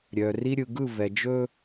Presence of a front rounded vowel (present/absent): present